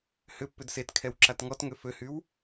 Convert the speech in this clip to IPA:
h ʏ pː ʏ d s e t kʰ ɛ w ǁ a t ŋ ɔ t ŋ ø f ø h y w

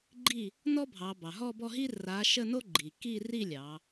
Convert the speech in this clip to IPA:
ɡ͡ǃ i˥˩ | n ɔ˥ bʱ ɑ˩˧ b ɑ˩ ɦ ɔ˥˧ b ɔ˥˧ ɦ i˥ r a˨˥ ʃ ə˥˧ n o˥ ɡ͡ǃ i˩ k i˥˧ r i˥˧ lʲ ɑ˩˧

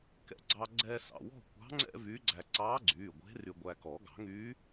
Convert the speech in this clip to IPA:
k ɛ̰˧ ɡ͡ǀ ɑ˧ ɡ͡ǀ ɛː˥ s ɑ̰˩˧˩ w ɔ̤˥˧ kʷ ɑ̤˧˥ ŋ͡ǀ ɛ̰˥ v yː˧˥ ɡ͡ǀ æ˧ ǀ ɑː˧˥ ɡ͡ǀ yː˩˧˩ ɡʷ e̤˧˥ r y˧ ɡʷ æ˧ k ɔ˨˩˦ ɡ ɑ̤˨˩˦ ŋ yː˧˥

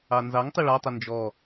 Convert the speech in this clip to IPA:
ɑ n z ɑ ŋ tˤ ɪ ɭ ɑ tˤ ə n d͡ʒ ɔ

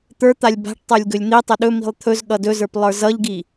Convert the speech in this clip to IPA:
t̪ ə˞ t̪ a lʲ b a̤ ʈ tˤ ə˞ lʲ ɡ ɵ lʲ n̪ i tˤ ɵ ɗ ɵ m i̤ lˠ t̪ʰ ɵ z ɠ ʌ d ɵ z ə˞ p lˠ ə˞ z ʌ ʎ ɡ i

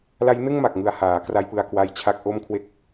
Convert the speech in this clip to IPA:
l a˦˥ j n ɯ˥˩ ŋ m a˨˩ k̚ ŋ ɯ˧ a̯ h aː˩˦ k r a˦˥ j p ɯ˧ a̯ k w a˦˥ j t͡ɕʰ a˦˥ k̚ ʔ o˥˩ m kʰ w e˦˥ k̚

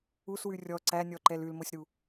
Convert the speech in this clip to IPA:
u s w ʉ rʲ ɔ ǀ æ nʲ ɔ ǃ ɛ l ʉ l m o sʲ ɾ u

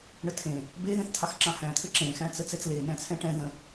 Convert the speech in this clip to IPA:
ɳ ə tʰ ẽ | b e ð ẽ θ t̪ʰ ɑ x ǁ ɑ̃ h æ̃ t̪ʰ ɘ ǁ ẽ x æ̃ t͡s ə t͡s ɛ t͡s l e n æ̃ t͡sʰ ɛ̃ ʈ ɛ̃ ð ə̃

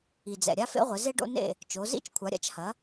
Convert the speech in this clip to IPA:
i˩ d͡z ɛ̰˩ ɾʲ a˦ f ḛ˦ ʁʷ ɘ˩˧ z e˦ ɖ o̰˦ n ḛ˥˩ | t͡ʃ o˩˧ z ḭ˥˩ t͡ʃ kʷʰ a˩˥ ɾʲ a̰˦ t͡ʃ h ɐ˩˥

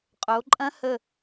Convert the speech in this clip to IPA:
qʼ o˩˧ ǃʼ ɐ̃˦˥ h ə˧˩

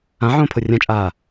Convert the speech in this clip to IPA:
ã ʕ õː pʰ o rʲ ã t͡ʃʼ aː

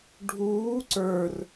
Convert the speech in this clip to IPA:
ɖʱ uː ǀ ə˞ r

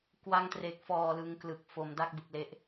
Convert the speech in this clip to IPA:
k w a˧ ŋ t r e˨˩ k̚ f ɔː˨˩ l ɯ˧ ŋ k l ɯ˨˩ k̚ f o˨˩ m d a˥˩ k̚ b ɯ˨˩ k̚ l e˦˥ ʔ

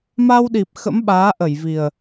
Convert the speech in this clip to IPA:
m a˧ w ɗ i˨˩ p̚ x ə̰˧˥ m ɓ aː˨˦ ʔ ə˧˩ j v i˨˩ ə̯

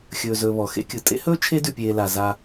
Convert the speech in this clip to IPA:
xʲ ɵː˨ z ɵː˨ β ɔ˩ x ḛ˦ kʲ ɯ˩ tʼ ḛ˥ h ɵː˥ t͡ʃʰ e˥ d ʉ˨ pʲ eː˨ l a˩ z a˨

